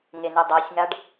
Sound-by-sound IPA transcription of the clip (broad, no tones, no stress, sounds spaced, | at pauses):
ŋ e n ɨ dˤ ɐ sʲ ŋ a ɖ